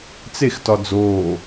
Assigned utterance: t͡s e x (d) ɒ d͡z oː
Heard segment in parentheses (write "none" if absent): t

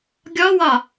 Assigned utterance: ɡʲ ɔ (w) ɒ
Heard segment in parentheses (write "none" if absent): w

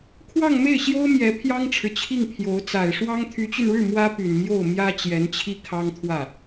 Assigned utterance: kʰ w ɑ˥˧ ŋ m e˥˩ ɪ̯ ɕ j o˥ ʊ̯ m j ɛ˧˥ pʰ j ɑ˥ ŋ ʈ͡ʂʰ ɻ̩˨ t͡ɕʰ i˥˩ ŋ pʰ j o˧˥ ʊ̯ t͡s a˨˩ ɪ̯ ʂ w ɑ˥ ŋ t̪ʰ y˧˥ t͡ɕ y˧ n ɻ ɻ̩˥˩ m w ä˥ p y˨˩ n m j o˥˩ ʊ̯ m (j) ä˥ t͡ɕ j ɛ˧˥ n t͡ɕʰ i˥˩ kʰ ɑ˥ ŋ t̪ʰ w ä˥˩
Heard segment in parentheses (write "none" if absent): j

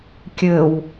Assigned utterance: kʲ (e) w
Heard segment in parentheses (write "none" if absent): ɘ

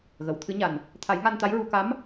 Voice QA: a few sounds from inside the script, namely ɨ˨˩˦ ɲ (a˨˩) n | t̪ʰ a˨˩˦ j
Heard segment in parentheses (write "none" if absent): a˨˩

